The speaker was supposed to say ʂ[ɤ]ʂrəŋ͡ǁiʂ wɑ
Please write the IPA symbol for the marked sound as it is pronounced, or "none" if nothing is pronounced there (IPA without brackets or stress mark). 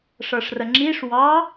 ɤ